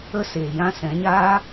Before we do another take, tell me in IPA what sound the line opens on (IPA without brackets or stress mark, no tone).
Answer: ə